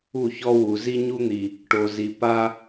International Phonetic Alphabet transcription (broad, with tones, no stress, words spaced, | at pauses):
u˦˨çɔ˦wu˨ zi˦ɲu˦n̪i˨ | ʈo˨zi˨ pa˦